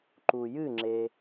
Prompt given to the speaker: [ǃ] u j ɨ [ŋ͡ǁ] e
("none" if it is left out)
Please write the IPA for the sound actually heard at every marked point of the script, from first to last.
ǃ, ŋ͡ǁ

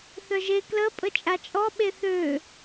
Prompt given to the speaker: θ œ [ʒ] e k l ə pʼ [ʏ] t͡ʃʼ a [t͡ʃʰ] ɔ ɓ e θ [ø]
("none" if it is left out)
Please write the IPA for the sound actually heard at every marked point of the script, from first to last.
ʒ, ə, t͡ʃʼ, ø

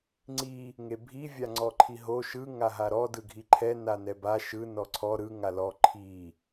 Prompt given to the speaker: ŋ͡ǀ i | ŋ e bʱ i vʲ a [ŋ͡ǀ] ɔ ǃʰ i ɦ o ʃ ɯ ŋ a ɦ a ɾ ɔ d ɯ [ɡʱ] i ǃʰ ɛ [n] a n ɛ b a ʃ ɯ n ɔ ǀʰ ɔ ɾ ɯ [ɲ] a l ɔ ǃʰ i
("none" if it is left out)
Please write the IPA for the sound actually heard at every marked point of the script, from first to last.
ŋ͡ǀ, ɡʱ, n, ŋ

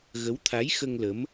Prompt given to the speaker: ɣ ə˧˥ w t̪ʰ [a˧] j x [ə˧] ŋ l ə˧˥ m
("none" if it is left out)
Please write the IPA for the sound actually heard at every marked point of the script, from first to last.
a˧˥, ə˧

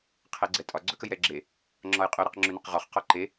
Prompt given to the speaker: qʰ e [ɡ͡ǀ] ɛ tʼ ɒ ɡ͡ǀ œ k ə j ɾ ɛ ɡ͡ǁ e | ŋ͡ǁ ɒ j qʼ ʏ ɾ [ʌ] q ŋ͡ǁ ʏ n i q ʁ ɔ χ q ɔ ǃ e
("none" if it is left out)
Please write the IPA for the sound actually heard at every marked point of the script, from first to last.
ɡ͡ǀ, ʌ

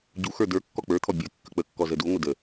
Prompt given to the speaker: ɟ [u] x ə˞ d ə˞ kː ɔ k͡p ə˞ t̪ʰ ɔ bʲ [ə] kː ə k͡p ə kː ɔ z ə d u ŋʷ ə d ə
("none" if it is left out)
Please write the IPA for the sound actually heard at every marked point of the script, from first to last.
u, ə

